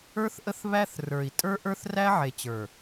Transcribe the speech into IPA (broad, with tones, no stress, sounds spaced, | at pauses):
ə˞˦ θ ʔ ə˦ θ β æ˦ θ r ə˞˨ i̯ tʼ ə˞˦ ʔ ə˞˦ θ r æ˦ ʕ e˨ t͡ɕ ə˞˨